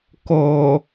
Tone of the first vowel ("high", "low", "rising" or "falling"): low